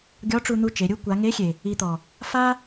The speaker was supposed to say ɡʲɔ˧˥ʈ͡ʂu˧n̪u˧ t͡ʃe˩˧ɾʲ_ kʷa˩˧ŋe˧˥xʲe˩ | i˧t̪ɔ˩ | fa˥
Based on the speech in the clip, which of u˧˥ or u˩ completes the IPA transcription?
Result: u˧˥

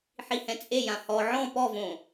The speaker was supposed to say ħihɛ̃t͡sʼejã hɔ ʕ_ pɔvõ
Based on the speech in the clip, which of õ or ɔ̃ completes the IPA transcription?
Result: ɔ̃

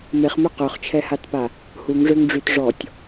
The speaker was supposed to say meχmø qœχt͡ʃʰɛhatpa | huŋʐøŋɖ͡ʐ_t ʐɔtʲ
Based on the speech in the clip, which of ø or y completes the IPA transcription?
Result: y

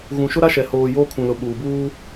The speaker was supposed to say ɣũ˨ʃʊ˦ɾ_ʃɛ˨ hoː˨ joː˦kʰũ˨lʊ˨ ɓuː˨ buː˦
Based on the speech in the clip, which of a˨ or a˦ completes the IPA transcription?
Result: a˦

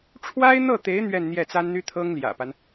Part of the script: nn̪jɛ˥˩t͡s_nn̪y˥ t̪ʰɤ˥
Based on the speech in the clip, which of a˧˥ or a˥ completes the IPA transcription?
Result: a˥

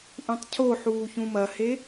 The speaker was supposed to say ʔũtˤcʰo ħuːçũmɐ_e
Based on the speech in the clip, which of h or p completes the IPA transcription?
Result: h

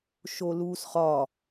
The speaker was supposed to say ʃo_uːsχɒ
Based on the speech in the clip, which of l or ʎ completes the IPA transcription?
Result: l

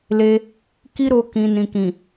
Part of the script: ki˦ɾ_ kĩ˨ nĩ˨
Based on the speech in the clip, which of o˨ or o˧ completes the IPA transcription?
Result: o˧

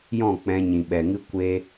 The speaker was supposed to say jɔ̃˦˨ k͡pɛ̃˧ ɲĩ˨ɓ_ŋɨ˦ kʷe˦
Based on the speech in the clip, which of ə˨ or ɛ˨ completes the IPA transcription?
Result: ɛ˨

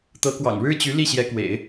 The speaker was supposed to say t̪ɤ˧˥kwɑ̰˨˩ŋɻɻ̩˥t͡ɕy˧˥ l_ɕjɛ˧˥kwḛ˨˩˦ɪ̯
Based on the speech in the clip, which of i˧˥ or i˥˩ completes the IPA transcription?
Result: i˥˩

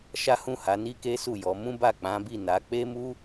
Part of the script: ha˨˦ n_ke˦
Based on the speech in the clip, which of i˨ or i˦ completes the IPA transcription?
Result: i˦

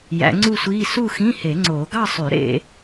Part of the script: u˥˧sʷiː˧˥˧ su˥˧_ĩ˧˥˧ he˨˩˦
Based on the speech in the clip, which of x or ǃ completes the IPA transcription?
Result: x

